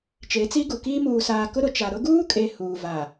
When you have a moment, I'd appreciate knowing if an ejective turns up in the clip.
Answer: yes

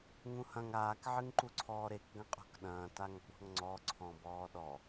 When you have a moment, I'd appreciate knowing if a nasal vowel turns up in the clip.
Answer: yes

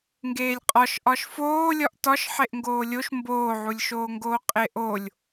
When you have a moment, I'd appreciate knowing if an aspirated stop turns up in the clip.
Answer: no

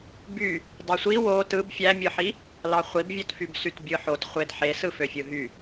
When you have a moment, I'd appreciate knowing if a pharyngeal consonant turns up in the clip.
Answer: yes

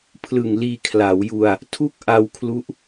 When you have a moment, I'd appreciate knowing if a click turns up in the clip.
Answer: no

